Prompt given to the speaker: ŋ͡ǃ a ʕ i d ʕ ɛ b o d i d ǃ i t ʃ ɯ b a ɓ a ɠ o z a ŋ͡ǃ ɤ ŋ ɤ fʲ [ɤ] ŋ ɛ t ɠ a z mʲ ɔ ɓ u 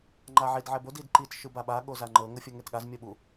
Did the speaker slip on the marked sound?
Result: no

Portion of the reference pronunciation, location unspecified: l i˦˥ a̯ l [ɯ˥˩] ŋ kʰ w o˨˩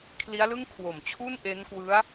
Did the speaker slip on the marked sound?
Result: no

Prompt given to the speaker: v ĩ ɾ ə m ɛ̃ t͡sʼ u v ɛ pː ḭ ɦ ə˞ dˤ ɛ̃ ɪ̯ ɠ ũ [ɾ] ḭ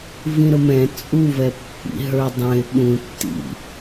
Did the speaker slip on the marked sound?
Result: yes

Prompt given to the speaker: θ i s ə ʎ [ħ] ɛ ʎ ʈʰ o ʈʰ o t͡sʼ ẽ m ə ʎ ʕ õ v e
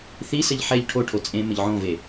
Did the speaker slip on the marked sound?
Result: no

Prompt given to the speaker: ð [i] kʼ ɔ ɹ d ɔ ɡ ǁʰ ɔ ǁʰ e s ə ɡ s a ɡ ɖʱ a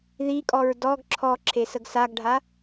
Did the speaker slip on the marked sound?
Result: no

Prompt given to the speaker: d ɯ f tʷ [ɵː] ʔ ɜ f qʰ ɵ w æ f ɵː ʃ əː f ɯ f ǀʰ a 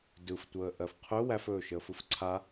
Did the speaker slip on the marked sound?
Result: yes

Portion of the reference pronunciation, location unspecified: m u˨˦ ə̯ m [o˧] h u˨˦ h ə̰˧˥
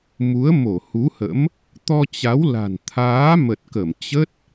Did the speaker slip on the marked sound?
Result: yes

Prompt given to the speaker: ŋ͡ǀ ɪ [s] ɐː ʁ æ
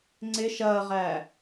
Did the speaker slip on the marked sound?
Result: yes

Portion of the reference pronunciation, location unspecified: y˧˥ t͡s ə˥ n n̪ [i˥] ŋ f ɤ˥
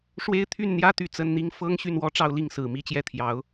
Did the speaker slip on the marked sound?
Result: no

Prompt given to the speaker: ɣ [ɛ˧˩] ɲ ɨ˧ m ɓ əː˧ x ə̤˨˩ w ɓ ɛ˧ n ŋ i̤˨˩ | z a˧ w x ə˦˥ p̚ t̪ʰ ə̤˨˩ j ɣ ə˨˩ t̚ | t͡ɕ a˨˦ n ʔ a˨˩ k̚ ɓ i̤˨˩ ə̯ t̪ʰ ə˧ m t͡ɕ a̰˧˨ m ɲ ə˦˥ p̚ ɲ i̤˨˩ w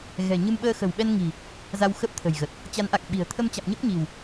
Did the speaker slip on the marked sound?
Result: yes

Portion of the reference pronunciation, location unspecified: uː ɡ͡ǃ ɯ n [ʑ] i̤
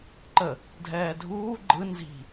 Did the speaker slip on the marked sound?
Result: yes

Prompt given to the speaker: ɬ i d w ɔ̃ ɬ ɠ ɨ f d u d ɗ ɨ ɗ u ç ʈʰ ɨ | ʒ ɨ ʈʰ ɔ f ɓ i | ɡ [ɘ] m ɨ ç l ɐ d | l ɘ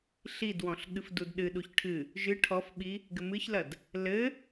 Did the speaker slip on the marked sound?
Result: no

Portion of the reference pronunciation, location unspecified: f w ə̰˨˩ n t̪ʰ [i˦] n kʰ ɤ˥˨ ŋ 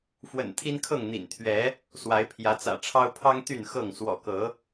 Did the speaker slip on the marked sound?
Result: no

